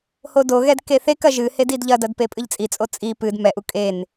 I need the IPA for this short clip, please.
h o d o ɣ ɛ d k e θ e k ɐ ʒ ɨ h e d i d ʎ ɐ d ɐ d p e pʼ ɨ ʎ t͡sʼ i t͡sʼ o t͡sʼ i p ɨ d m ɛ ʔ u kʼ e n

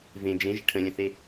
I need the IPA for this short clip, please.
v ẽ d͡ʒ ẽ ʒ ɪ ʈʰ ə̃ lʲ ə̃ θ e

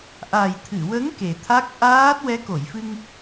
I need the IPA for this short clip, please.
ʔ a˨˩ j t̪ʰ ɨ˨˩˨ w ə˧˥ ŋ k e˨˩ t̪ʰ a˦˥ k̚ ʔ aː˦˥ t̚ w ɛ˧˥ k o˨˩˨ j f ɨ˧ ŋ

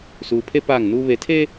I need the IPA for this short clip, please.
s uː˨ pʰ e˦ p aː˦˨ ŋ n uː˦ β e˨˦ tʰ eː˦

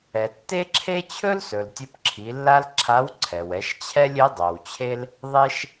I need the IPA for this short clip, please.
ɛ˩ tː e˥ ǁʰ e˥ t͡ɕʰ ɵ˥ l s ɵ˩ l tʲ ɵ˧ p ǁʰ i˩˧ lː a˥ l ǁʰ a˧˥ w ǀʰ ɛ˩ w ɛ˩˧ ʃ t͡ɕʰ ɛ˥ lʲ e˧˥ dˤ ɵ˩ w t͡ɕʰ e˥ l | ðˤ e˥ ʃ

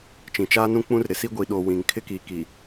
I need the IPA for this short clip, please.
t͡ʃ ĩ˨ t͡ʃ aː˦ n ũ˦ k͡p ũ˦ r ɾ ɪ˨ s i˦ ɡʷ i˨ ɗ o˨ w ĩ˨ ŋ kʰ ɪ˦ k iː˨ k i˨

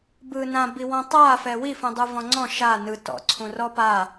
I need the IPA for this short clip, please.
b ɯ n ã b i w ɔ̃ tˤ a f ɛ w i f ũ dˤ ɯ v ɔ̃ ŋ͡ǀ ɔ̃ ʃ a n ɯ t ɔ̰ ǀʰ ũ r ɔ p a

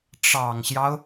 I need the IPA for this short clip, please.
ʈ͡ʂ ɑ˨˩ ŋ ɕ j ɑ˦ ʊ̯

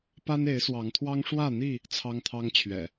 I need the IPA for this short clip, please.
p a˦ n e˨˦ ɪ̯ s w ɑ˨˦ ŋ t̪ʰ w ɑ˦ ŋ ʂ w ä˥˨ n̪ i˥˨ | t͡sʰ ɑ˦ ŋ t̪ʰ ɑ˦ ŋ t͡ɕʰ ɥ ɛ̰˨˩

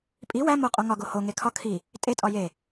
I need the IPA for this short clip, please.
pʼ i w æ m o qʼ o ŋ ɒ ɡ o h o ŋ e kʰ ɒ kʰ i | tʼ e tʼ ɒ j e

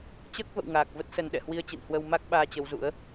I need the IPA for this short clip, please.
t͡ɕ əː˦˥ k̚ v ə̰˧˨ w ŋ aː˨˩ k̚ v ə˦˥ t̚ s ə˨˦ n ɗ ɛ̰˧˨ h w i˧ ə̯ t͡ɕ ḭ˧˨ n h w ə˧ w m a˦˥ k̚ ɓ aː˧ t͡ɕ ə˨˦ w z ṵ˧˥ ə̯

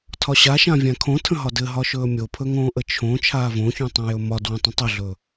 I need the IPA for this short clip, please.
tʰ ɒ ɕ a ʃ ã vʲ ã kʰ õ tʰ ə̃ ɦ ɒ d ɘ ɦ ɒ ʃ ɵː mʲ o pʰ ɵ ŋ õː ʔ ə t͡ʃʰ õ t͡ʃʰ aː v õ ç ũ tˤ ũ j ɵ m ɒ d w ə̃ tˤ ə̃ tˤ ə ɮ ɵ

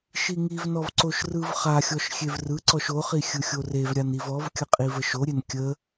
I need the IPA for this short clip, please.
ʃ i ŋ i v n ɔ v ǀ o ʃ r ɯ v χ a xʲ ɔ ʃ xʲ e v r ɯ ǀ ɔ ʃ o χ i xʲ ɯ xʲ o r e v ɾʲ a n i v ɔ v kʲ ə qʼ i v ə ʃ o ɾʲ e n kʲ ə

